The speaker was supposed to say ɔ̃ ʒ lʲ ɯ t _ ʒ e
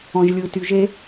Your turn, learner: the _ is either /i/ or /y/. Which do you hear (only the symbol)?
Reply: y